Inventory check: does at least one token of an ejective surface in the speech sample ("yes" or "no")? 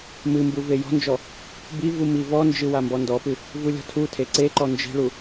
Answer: no